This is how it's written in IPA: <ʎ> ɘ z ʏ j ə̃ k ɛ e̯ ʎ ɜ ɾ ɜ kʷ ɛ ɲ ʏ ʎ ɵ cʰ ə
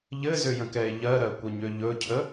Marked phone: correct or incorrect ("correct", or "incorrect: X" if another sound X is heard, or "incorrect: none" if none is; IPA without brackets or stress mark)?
correct